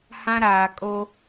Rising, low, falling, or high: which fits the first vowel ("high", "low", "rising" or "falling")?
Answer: high